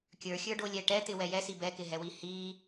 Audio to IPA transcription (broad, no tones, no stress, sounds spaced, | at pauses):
kʲ ə˞ xʲ ə˞ ɖ o lʲ ɛ ʈ ɛ t̪ ɪ w ɛ j ɛ s i b ɛ k ɪ ɦ ɛ w i h i